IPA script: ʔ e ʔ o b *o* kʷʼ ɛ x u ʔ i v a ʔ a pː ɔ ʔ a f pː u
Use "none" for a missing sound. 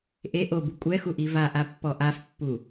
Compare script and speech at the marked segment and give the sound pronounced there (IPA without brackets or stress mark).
u